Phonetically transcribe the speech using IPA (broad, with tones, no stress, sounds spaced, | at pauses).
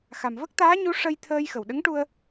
x a˨˩ m v ə˦˥ k̚ t̪ aː˧˥ ɲ u˧˥ ʂ ə˧ j t̪ʰ əː˧ j x ə˨˩ w ɗ ə˧˥ ŋ ʈ u˧ ə̯